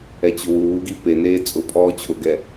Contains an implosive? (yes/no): no